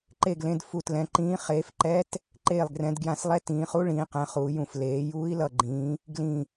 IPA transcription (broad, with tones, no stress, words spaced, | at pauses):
ǃe˧˩ɡlẽ˩˧d fu˧˩tlɛ̃˩˧ǃĩː˧˥ χeː˩˧fǃɛ˧˥t | ǃeː˧˩lˠɡrɛ̃˩˧dɡjã˧˩slˠɛ˧˥ tĩː˩˧χu˧˥ ɭĩː˩˧qɛ̃˩˧ χuː˩˧jũ˧˩f leː˩˧ juː˧˥i̯lʌ˧˩ɡ͡ǃĩː˩˧ | ɡlĩ˧˩